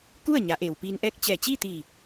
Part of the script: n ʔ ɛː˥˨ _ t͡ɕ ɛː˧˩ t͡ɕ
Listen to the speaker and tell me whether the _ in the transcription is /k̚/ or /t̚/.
k̚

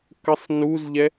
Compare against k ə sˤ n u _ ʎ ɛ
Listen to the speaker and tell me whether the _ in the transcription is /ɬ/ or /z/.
z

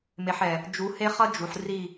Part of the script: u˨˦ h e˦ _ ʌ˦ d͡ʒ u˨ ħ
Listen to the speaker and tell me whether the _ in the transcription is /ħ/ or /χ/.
χ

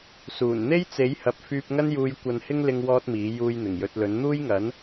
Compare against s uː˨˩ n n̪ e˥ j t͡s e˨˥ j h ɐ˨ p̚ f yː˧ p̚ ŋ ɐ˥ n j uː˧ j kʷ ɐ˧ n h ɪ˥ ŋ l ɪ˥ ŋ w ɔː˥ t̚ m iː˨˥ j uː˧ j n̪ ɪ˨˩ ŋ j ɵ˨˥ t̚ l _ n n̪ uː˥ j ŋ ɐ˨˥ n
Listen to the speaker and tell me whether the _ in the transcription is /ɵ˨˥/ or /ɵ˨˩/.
ɵ˨˥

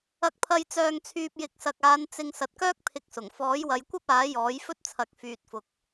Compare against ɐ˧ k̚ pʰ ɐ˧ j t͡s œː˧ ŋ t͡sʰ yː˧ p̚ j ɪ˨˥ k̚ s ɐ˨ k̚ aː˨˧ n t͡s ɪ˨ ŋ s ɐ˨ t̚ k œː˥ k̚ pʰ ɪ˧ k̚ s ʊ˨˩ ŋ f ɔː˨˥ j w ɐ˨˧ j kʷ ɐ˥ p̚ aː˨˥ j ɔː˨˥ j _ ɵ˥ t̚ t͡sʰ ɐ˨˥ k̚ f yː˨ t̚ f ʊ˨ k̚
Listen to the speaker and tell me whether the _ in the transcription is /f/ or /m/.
f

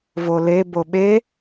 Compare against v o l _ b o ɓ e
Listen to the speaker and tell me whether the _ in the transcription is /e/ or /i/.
e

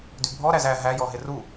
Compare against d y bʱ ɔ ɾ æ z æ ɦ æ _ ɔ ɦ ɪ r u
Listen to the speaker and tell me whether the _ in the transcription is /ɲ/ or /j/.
j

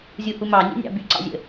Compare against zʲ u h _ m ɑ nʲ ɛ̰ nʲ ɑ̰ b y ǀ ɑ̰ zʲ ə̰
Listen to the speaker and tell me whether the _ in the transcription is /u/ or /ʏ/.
u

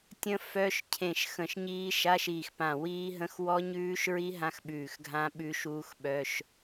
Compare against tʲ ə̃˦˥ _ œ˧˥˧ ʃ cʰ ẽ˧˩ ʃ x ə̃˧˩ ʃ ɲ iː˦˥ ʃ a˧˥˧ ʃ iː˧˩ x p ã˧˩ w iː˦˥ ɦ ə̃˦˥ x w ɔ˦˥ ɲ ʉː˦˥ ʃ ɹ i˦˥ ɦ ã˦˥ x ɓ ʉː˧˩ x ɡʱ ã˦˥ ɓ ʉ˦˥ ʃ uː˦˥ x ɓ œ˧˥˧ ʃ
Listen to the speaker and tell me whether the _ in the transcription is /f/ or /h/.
f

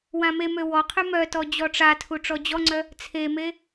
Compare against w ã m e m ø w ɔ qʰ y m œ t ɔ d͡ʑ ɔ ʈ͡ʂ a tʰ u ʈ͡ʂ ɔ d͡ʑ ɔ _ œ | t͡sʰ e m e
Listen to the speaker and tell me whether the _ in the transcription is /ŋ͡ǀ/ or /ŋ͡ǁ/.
ŋ͡ǀ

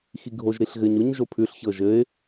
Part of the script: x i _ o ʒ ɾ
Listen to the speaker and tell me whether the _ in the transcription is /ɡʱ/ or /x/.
ɡʱ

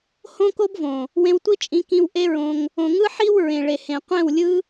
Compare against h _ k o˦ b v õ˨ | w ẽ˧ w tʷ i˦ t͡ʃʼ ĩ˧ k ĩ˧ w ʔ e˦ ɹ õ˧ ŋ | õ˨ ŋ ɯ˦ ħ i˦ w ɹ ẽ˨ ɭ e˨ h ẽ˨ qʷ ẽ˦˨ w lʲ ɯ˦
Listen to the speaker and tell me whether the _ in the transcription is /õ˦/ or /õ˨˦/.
õ˦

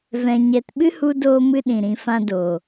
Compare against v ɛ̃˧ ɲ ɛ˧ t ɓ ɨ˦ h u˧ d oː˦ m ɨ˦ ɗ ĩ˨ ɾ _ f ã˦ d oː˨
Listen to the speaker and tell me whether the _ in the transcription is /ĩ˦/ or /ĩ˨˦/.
ĩ˨˦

